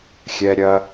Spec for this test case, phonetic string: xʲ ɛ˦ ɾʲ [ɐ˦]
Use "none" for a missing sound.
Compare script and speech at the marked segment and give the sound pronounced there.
ɐ˦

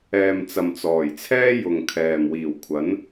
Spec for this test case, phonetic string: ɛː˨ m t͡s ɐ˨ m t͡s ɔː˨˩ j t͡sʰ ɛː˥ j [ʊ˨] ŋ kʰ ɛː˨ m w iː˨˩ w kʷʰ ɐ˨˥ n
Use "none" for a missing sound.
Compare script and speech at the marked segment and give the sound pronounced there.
ʊ˨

